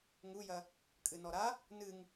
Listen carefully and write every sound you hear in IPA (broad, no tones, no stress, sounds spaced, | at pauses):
ŋ u j ɐ | kʼ ɨ n ɔ ɾ a | n ɨ ŋ